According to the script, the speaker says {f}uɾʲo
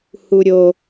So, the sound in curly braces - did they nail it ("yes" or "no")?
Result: no